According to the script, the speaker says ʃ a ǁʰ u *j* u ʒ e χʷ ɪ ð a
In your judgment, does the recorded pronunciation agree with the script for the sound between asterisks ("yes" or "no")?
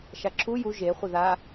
yes